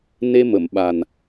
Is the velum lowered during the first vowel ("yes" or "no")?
no